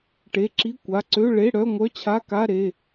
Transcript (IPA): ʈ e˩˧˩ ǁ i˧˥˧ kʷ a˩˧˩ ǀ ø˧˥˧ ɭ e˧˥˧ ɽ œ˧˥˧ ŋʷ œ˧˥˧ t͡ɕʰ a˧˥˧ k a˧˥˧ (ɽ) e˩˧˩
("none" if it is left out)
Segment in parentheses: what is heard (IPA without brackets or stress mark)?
ɾ